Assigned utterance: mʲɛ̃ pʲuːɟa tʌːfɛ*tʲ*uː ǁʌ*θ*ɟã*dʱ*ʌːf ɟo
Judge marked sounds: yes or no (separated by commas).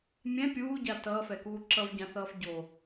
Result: no, no, no